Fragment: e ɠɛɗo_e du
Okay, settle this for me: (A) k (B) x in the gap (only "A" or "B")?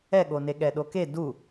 A